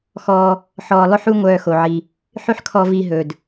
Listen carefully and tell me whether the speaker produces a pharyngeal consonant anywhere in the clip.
yes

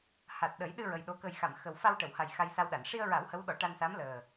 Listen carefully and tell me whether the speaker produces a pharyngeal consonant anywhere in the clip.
no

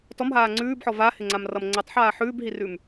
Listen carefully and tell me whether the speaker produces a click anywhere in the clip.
yes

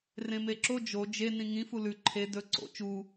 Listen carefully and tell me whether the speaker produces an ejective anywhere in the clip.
no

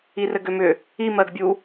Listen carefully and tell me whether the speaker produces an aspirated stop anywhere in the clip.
no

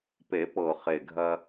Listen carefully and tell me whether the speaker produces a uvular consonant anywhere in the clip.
yes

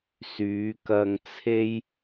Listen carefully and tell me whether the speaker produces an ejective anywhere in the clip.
no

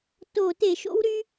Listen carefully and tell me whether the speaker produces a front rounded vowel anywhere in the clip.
yes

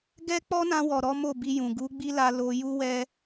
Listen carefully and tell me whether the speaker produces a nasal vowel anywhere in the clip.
yes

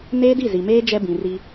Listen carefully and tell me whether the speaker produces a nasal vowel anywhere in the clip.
yes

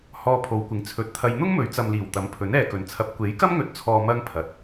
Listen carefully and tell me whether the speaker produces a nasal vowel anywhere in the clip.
no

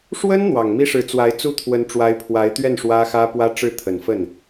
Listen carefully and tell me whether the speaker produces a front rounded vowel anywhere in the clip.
no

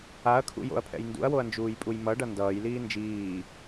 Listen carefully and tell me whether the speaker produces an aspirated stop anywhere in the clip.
yes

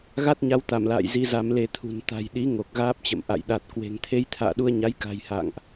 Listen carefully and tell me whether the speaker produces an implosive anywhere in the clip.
yes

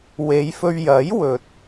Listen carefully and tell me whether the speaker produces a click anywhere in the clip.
no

